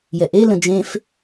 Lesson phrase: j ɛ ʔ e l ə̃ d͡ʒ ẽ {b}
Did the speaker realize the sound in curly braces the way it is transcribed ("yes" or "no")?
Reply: no